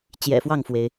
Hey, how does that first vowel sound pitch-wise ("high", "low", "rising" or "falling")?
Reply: low